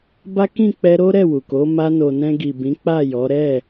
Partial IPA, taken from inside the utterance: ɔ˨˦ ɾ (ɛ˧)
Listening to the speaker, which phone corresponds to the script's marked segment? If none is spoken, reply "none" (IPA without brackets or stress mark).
ɛ˦˨